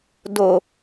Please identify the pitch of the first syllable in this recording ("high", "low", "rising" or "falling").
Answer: low